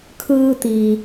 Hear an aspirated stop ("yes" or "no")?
yes